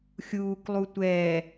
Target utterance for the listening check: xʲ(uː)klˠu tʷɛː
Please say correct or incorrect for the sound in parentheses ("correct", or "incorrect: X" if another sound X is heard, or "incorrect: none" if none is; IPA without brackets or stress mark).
correct